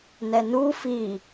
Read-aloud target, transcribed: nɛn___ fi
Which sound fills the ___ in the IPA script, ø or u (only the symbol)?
u